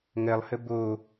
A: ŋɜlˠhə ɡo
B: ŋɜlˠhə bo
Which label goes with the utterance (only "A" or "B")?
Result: B